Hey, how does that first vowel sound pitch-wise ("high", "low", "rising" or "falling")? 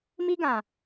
high